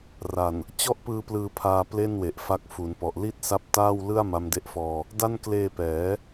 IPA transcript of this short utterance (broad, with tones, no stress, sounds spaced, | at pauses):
r a˨˩ n | t͡ɕ ɔ˥˩ ʔ p ɯː˧ p l ɯː˧ pʰ aː˧ p l e˥˩ n w e˨˩ ʔ f a˦˥ k̚ f u˩˦ n p ɔ˨˩ ʔ l i˥˩ t̚ s a˦˥ p̚ t aː˥˩ w l ɯ˥˩ a̯ m a˦˥ m d e˦˥ ʔ f ɔː˧ | d a˥˩ n k l eː˧ p ɛː˩˦